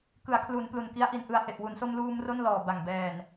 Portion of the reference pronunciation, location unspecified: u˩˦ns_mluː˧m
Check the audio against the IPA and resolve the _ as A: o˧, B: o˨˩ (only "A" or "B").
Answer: A